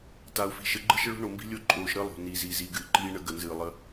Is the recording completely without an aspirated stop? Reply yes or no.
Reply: yes